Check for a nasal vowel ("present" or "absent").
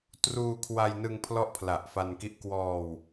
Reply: absent